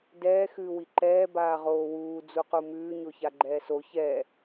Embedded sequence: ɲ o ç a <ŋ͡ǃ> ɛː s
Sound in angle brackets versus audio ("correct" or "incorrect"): incorrect